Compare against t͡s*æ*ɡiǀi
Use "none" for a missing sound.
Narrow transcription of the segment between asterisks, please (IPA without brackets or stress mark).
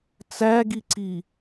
æ